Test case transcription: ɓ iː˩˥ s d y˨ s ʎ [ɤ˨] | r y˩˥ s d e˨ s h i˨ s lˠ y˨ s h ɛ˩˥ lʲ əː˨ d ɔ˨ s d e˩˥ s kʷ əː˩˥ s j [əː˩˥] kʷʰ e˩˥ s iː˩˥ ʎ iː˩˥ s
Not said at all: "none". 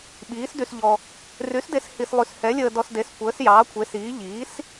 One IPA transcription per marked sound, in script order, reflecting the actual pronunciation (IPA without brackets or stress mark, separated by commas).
ɔ˨, ɑː˩˥